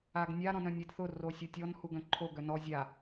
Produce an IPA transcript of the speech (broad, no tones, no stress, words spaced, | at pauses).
aɡnʲa ɾɔ̃nœ̃nʲɛdθʊ rosʲʊtʲɔn huɡœ̃ǃʰo ɡœnɔ zʲa